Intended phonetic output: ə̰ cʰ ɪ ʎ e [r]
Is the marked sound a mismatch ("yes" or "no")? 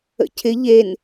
yes